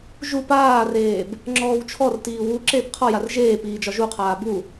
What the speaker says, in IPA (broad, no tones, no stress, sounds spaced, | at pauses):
ʒ u p aː r eː b | ŋ͡ǁ ɔː w t͡ʃʰ ɔ r t iː w u ǁ eː p qʰ ɒ j a r ʒ eː p iː d͡ʒ ɒ ʒ u qʰ aː b u